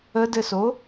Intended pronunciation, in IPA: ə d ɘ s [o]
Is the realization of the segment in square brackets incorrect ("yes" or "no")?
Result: no